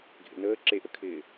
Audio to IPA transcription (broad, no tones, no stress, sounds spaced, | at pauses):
ɡʱ ḛ n əː ǁ e ʔ ə kʰ ɪː